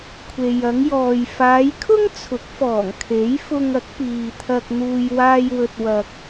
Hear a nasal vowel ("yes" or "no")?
no